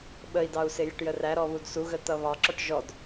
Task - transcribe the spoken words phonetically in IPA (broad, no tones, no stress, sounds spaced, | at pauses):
ɓ ə i̯ d ɑ u̯ s ɪ j ə ʈ j ə r æ ɾ ɔ β u d s u ɣ ə t ʌ β ɑ ǁ ɔ ʈ ʒ ɔ d